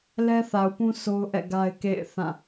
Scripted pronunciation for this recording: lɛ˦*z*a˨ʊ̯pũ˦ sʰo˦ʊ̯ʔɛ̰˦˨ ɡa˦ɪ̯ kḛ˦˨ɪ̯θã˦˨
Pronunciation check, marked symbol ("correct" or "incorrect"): incorrect